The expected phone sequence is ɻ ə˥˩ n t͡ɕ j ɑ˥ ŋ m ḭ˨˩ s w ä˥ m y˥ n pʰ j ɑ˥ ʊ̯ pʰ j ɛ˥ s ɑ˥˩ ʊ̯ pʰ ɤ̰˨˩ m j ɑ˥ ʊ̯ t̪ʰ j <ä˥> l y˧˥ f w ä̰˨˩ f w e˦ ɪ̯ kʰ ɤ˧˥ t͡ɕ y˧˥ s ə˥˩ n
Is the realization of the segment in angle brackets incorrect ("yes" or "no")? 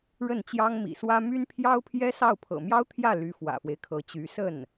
yes